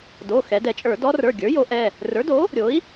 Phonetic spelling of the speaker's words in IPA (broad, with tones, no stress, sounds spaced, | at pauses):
d o˩˧˩ x ɛ˩˧ d ɛ˧˩˧ t͡ʃʼ ə˞˧˩˧ d ɔ˧˥ r ə˞˩˧˩ ɡʲ ə˞˩˥ j o˩˥ ʔ ɛ˩˧˩ | r ə˞˩˥ d o˩˥ | ɾʲ o˩˥ i̯